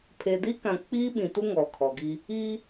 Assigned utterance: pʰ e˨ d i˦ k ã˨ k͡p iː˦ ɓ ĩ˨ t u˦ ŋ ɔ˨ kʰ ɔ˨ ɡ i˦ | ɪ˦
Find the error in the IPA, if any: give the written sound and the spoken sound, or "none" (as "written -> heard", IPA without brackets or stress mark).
ɪ˦ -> i˦